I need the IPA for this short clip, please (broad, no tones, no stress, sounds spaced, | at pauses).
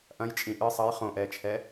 ʔ ɐ̃ j t͡ʃʼ ĩ ʔ ɨ sˤ ɐ j χ õ ʔ ɛː t͡ʃʰ ɛ